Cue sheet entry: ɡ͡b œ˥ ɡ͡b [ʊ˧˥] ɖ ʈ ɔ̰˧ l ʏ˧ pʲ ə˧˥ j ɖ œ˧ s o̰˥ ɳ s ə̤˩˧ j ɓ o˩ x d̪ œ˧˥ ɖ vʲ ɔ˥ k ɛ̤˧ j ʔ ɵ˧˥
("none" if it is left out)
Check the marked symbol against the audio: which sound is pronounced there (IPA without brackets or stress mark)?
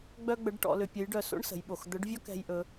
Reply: ə˧˥